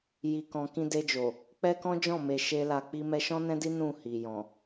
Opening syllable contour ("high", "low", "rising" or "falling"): low